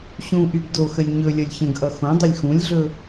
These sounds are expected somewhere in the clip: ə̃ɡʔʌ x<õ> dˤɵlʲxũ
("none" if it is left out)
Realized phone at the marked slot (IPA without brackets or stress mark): õ